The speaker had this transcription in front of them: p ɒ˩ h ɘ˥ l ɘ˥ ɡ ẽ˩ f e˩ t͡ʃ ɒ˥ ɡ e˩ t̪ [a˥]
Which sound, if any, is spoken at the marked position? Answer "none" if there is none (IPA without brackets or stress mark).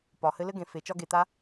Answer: a˥